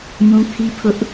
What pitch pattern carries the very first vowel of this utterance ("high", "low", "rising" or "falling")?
high